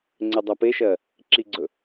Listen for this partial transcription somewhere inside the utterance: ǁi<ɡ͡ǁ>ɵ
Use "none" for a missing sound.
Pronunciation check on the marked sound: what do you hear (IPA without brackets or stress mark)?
ɡ͡ǀ